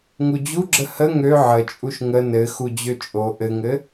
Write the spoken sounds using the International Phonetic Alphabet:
ŋ u d͡ʑ u ɡ͡ǁ ə h ə ŋ ø ʕ ə t͡ʃʼ u ʃ ŋ ə n ɘ x u d͡ʑ ø t͡ʃʼ o ʔ ɘ ŋ ɘ

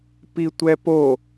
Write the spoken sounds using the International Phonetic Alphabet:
p i tʷ ɛ p o

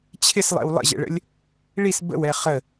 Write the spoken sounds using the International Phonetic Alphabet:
t͡ɕʰ ɪ s lˠ ɛ̰ w lˠ ə̰ ʑ ɛ̰ ɭ ə̰ lʲ | ɭ i s b ə̰ w ɛ χ ə

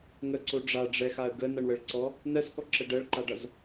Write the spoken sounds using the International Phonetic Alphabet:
ŋ ə ǀ o ɖ͡ʐ a ɖ͡ʐ ɛ x a ə̯ ɡ ə n ʌ ɳ w ə ɭ ǀ ɔ | n ɜ s k ɔ ǁ ə ɖ ɜ ɭ ǃ a ɖ ʌ z

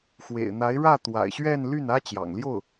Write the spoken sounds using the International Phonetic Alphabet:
x w ḛ˨˩ ɪ̯ n̪ a˧˥ ɪ̯ ɻ ä˥˩ t̪ w a̰˨˩ ɪ̯ ɕ ɥ ɛ˥˧ n l y˥˩ n ä˥ t͡ɕ j ɑ̰˨˩ ŋ l j o˥˩ ʊ̯

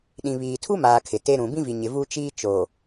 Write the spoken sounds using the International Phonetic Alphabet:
ɗ ĩ˨ β iː˨ tʰ u˦ m aː˨ kʰ ɪ˨ t e˦ ɾ ũ˨ b ĩ˦ v i˨ ɲ ɪ˨ v u˦ t͡ʃ iː˦ t͡ʃ o˨

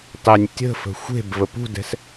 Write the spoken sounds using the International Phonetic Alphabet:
tˤ ɛ nʲ tʲ ə̤ f ə̤ xʷ e̤ b v ə p ṳ d ɛ̤ s

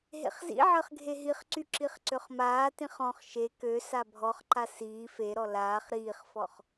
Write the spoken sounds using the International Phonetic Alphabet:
ɦ ḛ χ z ḭ ʕ əː χ ɡʱ e ɦ i χ ǀ y ǁ i χ ǀ ø χ m aː t ĩ χ ɔ̃ χ ʃ e k ø s a bʱ ɔ χ ǃ a s iː f e ɾ ɔ l aː χ ɾ iː χ f ɔ χ

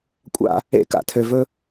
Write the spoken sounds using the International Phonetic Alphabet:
kʷʼ a̰˦ | ḛ˦ k a̰˨ tʰ ø˨ v ɵ˦

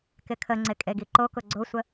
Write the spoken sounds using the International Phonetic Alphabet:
k ɪ kʰ ə ŋ͡ǀ ɪ kʼ e ɡ i ǃ o k ʊ ɡ͡ǀ o sʷ ə

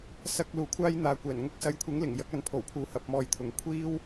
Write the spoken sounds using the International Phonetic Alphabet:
s ɐ˧ k̚ l uː˨˩ kʷʰ aː˥ j n̪ aː˨ kʷ ɛː˨˩ n ŋ ʊ˥ k̚ s ɐ˨˥ j kʷʰ ɪ˨˥ ŋ l ɪ˨˩ ŋ j ɐ˨˥ k̚ ɐ˨ n pʰ o˨˩ w pʰ uː˨˥ h ɐ˨˥ p̚ m ɔː˧ j t̪ʰ ʊ˨ ŋ kʷʰ iː˥ w

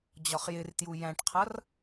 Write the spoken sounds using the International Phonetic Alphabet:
d͡ʑ ɒ χ j ɪ r t j u j æ̃ ʈ qʰ ʌ r

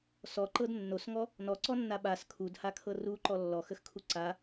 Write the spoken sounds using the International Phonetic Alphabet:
s ɔ ǃ ɤ d nː o s ŋ ɔ | n ɔ ǀ ɔ nː a ɓ a s kʰ u d h a kʰ ɤ r u ǃ ɔ lː ɔ x ə x kʰ u ǀ a

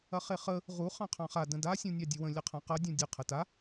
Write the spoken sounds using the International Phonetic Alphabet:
ɐ χ e χ ə | ʁ u χ ɑ̃ qʰ ɑ̃ χ a d ə̃ d a sʲ ũ nʲ ɑ dʲ ə w ə̃ lʲ ɐ qʰ ɐ̃ q ɐ dʲ ũ dʲ ə qʰ ə t a

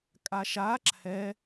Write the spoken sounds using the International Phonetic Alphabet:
kʼ a ʃ a ǁʰ ɛ

